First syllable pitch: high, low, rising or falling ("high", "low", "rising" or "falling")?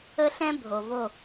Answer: high